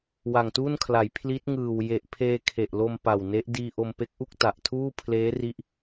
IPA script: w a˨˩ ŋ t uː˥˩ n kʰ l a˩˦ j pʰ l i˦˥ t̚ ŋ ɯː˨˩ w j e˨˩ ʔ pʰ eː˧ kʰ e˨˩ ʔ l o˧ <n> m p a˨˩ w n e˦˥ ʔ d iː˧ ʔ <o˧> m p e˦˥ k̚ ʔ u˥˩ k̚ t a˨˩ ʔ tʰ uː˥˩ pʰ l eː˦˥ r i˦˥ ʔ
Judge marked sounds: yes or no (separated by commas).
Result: no, yes